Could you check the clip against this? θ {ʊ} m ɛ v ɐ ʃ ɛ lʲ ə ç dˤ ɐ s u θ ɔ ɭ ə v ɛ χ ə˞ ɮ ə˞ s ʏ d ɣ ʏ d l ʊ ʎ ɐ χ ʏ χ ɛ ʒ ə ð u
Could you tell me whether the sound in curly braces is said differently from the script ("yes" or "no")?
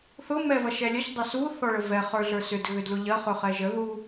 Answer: no